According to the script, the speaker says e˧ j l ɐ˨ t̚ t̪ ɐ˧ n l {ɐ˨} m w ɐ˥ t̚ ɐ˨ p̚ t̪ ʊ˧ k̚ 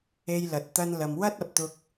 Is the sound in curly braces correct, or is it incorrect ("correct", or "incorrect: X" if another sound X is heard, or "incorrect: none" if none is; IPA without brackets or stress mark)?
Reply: correct